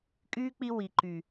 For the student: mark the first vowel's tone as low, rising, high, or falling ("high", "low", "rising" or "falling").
high